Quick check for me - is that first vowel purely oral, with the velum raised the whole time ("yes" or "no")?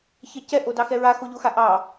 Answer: yes